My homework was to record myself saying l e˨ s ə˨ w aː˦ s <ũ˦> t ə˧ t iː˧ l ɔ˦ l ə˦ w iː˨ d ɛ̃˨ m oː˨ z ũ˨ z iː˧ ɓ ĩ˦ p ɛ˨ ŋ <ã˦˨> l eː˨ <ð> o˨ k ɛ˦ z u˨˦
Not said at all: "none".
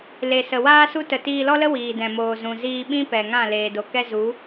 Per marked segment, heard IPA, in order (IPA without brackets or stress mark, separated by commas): u˦, ã˦˨, d